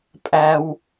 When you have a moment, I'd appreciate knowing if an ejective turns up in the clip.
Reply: yes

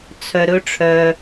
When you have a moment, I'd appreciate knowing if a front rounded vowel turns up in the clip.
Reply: yes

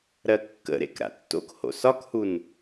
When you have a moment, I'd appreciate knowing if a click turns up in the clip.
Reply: no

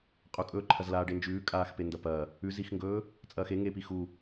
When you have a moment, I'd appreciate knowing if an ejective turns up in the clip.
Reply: yes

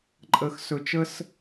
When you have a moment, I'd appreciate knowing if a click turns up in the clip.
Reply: yes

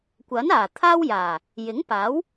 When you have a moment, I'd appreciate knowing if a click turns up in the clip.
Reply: no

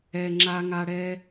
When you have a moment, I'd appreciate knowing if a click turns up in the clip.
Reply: yes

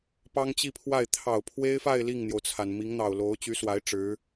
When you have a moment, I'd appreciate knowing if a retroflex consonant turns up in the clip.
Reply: yes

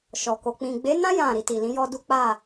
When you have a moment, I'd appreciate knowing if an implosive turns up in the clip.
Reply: no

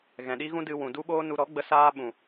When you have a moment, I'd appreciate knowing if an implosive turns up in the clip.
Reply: yes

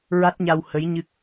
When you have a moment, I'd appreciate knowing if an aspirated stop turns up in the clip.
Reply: no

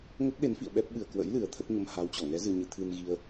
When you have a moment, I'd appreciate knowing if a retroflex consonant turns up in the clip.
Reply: no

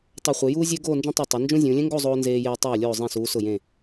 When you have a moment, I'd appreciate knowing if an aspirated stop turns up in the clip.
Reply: no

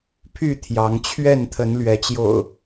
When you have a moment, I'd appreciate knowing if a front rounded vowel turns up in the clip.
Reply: yes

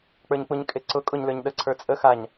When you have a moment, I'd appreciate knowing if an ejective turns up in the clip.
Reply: yes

